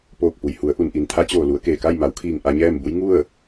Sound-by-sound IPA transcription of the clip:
p oː˧˩ k̚ p u˩ j h u˩˧ ə̯ ʔ u˩ n ʔ i˩ n t̪ʰ a˧˥ t͡ɕ oː˧˩ l u˩˧ ə̯ k eː˧˩ k a˥˨ j m a˩˧ w kʰ iː˧˩ ŋ ʔ a˧ ɲ ɛː˥˨ m b u˧˥ j ŋ u˥˨ ə̯

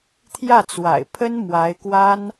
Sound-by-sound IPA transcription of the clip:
t̪ʰ j ä˥˩ t͡s w a̰˨˩ ɪ̯ pʰ ə˥ n m w a˧˥ ɪ̯ k w a˥ n

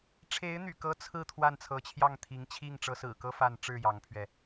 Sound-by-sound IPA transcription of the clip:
ʈ͡ʂʰ e˧˥ ɪ̯ n̪ y̰˨˩ k ɤ˧˥ t͡sʰ ɹ̩˥˧ t̪ʰ w a˥˩ n t͡sʰ ɤ˧˥ t͡ɕʰ j ɑ˥˩ ŋ t̪ʰ i˧˥ ŋ t͡ɕʰ i˥˩ ŋ ʈ͡ʂ ɤ˧˥ s ɹ̩˨˩ k ɤ˥ f a˥˧ n ʈ͡ʂ ɻ̩˥˩ j ɑ˧˥ ŋ pʰ ɥ ɛ˧

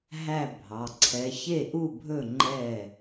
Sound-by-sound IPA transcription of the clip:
ɦ æ˥˧ bʱ ɑ˩˧˩ ǀʰ ɛ˨˦ ç e˥˩ ʔ u˥˩ bʱ ɵ˥˩ ŋ͡ǃ ɛ˥˩

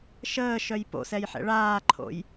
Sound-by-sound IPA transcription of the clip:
ʃ əː ʃ œ j p o̰ s ɛ j ħ ɛ̰ ɭ aː ǃʰ o̰ j

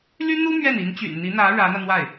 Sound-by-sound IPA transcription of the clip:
l y˥ n̪ u˥ m ɥ ɛ˥˩ n i˧˥ n t͡ɕ y̰˨˩ n n̪ i˧˥ n̪ ä˧˥ ɻ ä˧˥ n̪ ä˧ n̪ w a˥˩ ɪ̯

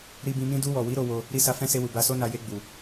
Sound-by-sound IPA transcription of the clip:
ɾ i˧ b ĩ˧ m ĩ˦ d u˧ w ɔ˨ w i˨˦ ɾ o˧ w o˧ | ɾ i˧ s a˧ f ɛ̃˦ s e˧ w u˨ b a˧ s o˦ n a˧ j e˧ ɡ͡b u˨

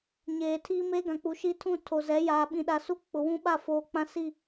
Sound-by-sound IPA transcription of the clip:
ɲ eː˨ tʰ iː˦ m eː˦ ɡ ã˨ k͡p u˨ ʃ i˦ tʰ ũ˦˨ tʰ o˨ z ɛ˨˦ j aː˨ ɓ ĩ˨ ɗ a˨ s u˦ k͡p ʊ˨ w ũ˦ ɓ a˦˨ f oː˨ k͡p ã˦ s i˦˨

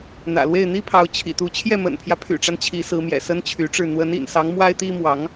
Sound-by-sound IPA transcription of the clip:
n̪ ä̰˨˩ l w e˥˩ ɪ̯ n̪ i˥ pʰ ɑ˧˥ ʊ̯ t͡ɕʰ ḭ˨˩ t̪ u˧˥ t͡ɕʰ j ɛ˥˩ m ə̰˨˩ n pʰ j ä˦ pʰ y̰˨˩ ʈ͡ʂ a˦ n t͡ɕʰ i˧˥ s ɹ̩˧˥ m j ɛ̰˨˩ s ə˥ n t͡ɕʰ y˧˥ ʈ͡ʂ ɻ̩˥˩ n̪ w ə˧˥ n ḭ˨˩ n s ɑ˧˥ ŋ m w a˥ ɪ̯ t̪ i˥ m w ɑ˧˥ ŋ

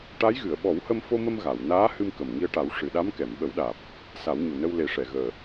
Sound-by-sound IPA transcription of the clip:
ʈ a˧˥ j ɣ ɨ˨˩˨ ə̯ ɓ ɔ˨˩˦ w h ə˧ m f o˧ m ə˧ m ɣ a˨˩˨ w n aː˧˥ h ɨ˧ m k ə˨˩ m ŋ i˧ ə̯ ʈ a˨˩˦ w ʂ ɨ˨˩ ɗ a˧˥ m k ɛ˨˩˨ m ɓ ə˨˩˦ w ɗ aː˨˩ p̚ | s a˨˩˦ w ɲ u˨˩ n ə˧ w l e˨˩˦ ʂ ɛ˨˩˨ ɣ əː˨˩

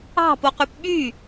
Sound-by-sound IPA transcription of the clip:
ɑ̤ p o q y p ɓ y

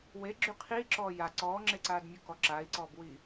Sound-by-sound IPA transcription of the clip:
w e ɡ͡ǁ y qʰ iː ǁ ɔː j a ǀ ɔː ŋ͡ǁ e ǀ aː d mʲ u k ɔ ǁ aː i̯ ǀ ɔː b w iː

